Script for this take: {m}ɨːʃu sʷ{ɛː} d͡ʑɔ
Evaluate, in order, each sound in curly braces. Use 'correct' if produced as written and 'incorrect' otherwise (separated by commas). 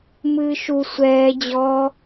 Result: correct, correct